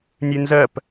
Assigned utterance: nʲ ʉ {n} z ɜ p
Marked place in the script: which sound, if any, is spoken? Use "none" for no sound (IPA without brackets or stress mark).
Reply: n